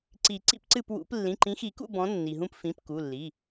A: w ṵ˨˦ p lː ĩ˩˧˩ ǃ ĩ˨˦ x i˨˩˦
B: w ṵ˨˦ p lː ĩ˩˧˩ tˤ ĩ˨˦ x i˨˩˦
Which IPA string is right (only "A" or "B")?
A